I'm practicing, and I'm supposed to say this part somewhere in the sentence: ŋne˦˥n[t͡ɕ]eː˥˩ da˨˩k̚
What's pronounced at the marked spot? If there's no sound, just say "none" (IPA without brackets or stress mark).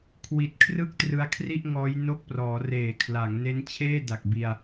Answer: t͡ɕʰ